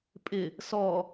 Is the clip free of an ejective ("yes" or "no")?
no